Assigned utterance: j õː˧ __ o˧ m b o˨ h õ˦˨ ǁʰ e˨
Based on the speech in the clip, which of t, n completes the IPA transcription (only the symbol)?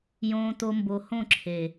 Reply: t